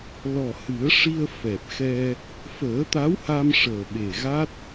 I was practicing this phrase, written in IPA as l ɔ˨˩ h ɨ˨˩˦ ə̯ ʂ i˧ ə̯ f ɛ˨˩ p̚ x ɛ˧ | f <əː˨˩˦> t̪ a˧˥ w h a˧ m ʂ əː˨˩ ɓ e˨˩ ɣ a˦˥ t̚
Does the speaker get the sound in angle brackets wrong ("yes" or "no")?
no